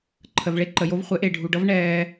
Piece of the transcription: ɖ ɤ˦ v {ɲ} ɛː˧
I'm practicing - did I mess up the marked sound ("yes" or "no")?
yes